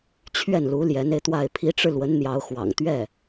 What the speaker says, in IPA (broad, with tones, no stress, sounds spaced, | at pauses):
t͡ɕʰ ɥ ɛ˥˩ n l u˧˥ l j ɛ˧˥ n e˧ ɪ̯ t̪ w a˥˩ ɪ̯ pʰ i˧˥ ʈ͡ʂ ɻ̩˧ l w ə˧˥ n n̪ j ɑ˧˥ ʊ̯ x w ɑ̰˨˩ ŋ t̪ ɥ ɛ˥˩